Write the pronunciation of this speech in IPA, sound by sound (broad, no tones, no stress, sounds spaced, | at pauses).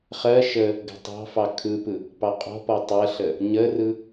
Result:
χ ɜ ʃ ə | ɡ ə̤ tˤ ɑ̤ f ɑ kʰ ɯ p ɯ | p ɑ qʼ ɔ̤ p ɔ tˤ ɜ ɬ ə | ɲ ə r ɯ